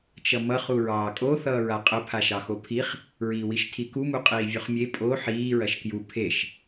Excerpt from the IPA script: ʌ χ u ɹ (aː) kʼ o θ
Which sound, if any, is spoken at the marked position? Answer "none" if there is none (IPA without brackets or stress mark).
ɑː